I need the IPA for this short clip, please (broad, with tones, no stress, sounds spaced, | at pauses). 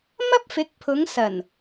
m ɐ˥ p̚ f ɪ˨˥ k̚ pʰ ʊ˨˧ ŋ s ɐ˨˩ n